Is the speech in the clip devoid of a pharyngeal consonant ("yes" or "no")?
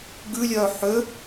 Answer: no